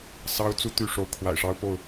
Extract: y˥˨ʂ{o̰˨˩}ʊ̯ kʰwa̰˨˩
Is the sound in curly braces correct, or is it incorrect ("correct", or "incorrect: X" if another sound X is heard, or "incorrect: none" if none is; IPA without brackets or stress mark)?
incorrect: o˨˦